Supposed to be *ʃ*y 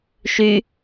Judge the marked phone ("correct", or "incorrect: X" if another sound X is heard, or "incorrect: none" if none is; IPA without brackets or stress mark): correct